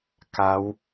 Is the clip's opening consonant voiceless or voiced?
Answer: voiceless